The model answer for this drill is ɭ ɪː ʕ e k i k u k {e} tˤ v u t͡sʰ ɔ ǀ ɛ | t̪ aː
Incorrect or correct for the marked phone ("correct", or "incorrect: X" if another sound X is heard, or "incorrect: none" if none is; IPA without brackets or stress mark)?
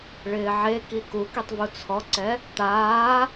incorrect: i